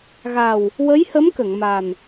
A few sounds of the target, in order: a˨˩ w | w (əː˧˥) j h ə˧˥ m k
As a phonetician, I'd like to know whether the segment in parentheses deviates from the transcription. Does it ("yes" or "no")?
yes